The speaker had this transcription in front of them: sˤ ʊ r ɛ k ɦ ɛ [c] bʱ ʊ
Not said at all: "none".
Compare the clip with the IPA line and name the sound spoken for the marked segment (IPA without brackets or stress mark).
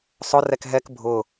k